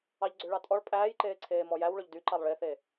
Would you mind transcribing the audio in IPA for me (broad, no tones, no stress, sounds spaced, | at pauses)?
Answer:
ɑ ʎ ɡ͡ǀ ø ɭ ɑ tʼ ɔ ɭ pʼ æː j ǃ eː ǀʰ eː m ɔ j æ w ɭ ɵ ʎ d y ǃ ɑ lˠ ɭ e θ eː